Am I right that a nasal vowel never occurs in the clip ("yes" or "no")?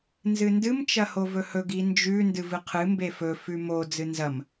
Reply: yes